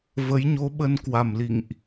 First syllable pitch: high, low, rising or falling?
rising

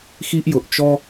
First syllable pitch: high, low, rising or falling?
high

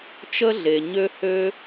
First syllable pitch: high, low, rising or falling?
high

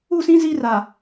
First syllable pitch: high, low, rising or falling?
falling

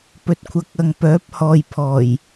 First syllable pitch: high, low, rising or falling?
low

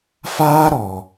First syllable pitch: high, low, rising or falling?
high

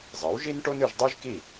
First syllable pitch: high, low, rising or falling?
rising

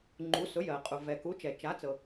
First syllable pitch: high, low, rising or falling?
rising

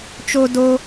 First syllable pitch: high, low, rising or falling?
high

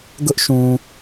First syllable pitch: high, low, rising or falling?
high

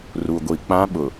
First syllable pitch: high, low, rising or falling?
low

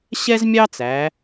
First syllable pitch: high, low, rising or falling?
high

